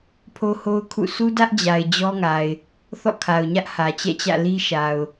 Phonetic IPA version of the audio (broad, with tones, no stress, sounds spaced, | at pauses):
pʰ o˦ h o˦ ʊ̯ kʰ ṵ˦˨ s u˦ d ä˦ ʔ d͡ʑ a˨ ɪ̯ d͡ʑ ɔ˦ ŋ a˨ ɪ̯ | θ ɔ̰˦˨ kʰ a˨ ʊ̯ ɲ ä˦ ʔ h ä˨ t͡ɕ ɛ̰˦˨ t͡ɕ ä̰˦˨ l i˦ ʃ a˨ ʊ̯